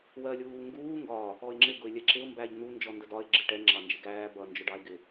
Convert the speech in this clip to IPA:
w ɜ lʲ uː ŋ ɡ uː ŋ ɡ ɒ | ɔ ɪ̯ ŋ͡ǁ ɪ ɡ ʊ ɪ̯ lʲ ɛ ǁ ɪ ʊ̯ m b æ ʎ n̪ u n d͡ʒ ɔ n d ə d ɒ ɪ̯ ɡ͡ǁ ɪ ʈ ɛ ŋ͡ǁ ɑ n d͡ʒ ɪ ɡ æː b ʌ n d͡ʒ ʊ ɖ ɑ ɪ̯ ɡ ɪ

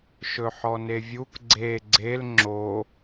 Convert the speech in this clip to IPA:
ʃ ɵ ħ ɔ n e vʲ u k ɡ͡ǀ e ɡ͡ǀ e l ŋ͡ǁ o

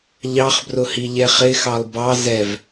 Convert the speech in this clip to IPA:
ʎ ɑ χ b r ʊ h i ʎ ɛ χ ɪ x ɑ lˠ b ɑ z ɛ v

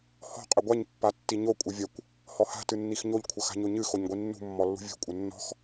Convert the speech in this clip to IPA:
h ɔ̤ qʼ ɘ ɡʷ a ɲ pː a tː i ɲ o kʷʼ ɘ vʲ ɐ kʷ | h ɔ h a̤ t ɨ nː i x ɲ o ʎ kʷʰ ɐ x a̤ ɲ o ɲ ɨ x o ɲ ɡʷ i nː ṳ mː ɔ lː ṳ vʲ ṳ kʷʼ ɘ nː ɔ̤ x

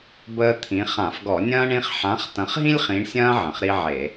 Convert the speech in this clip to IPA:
b əː˦ t̪ʰ ĩ˨˦ χ ã˧˩˧ f ɡ ɔ˧˩˧ nʲ ɐ̃ː˦ ɳ ĩ˦ χ ħ ã˨˦ χ t ɐ̃˨˦ χ ɦ ĩ˦ lʲ χ ĩ˨˦ ɳ sʲ ɐ̃ː˦ ʕ ə̃˩ χ ɾ i˦ ʕ e˧˩˧

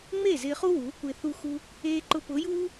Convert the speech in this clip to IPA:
ŋ͡m e˦˨ z ɪː˧ χ u˦ w uː˨˦ kʷ ɪː˧ θ u˧ x u˧ | eː˧ ǃ ʊ˧ p ʊː˨˦ j uː˦

